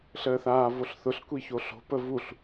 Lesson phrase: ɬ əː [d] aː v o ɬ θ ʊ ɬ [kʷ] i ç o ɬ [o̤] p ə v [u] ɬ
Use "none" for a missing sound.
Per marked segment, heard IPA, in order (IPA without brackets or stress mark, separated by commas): θ, kʷ, o̤, u